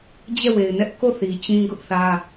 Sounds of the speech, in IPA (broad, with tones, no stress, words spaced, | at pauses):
d͡ʑɛ˦˨we˨ɪ̯nɛ˦ʔ ko˦˨θi˨ t͡ɕĩ˦ɡʊ˦ʔθä˦